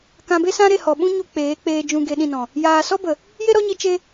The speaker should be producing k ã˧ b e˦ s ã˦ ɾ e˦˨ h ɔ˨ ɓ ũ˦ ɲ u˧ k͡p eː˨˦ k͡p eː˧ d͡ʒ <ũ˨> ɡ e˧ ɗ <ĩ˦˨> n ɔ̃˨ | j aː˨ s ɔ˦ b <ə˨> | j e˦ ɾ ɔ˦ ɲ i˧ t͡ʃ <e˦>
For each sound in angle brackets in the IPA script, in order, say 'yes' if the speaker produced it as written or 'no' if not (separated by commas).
no, yes, yes, yes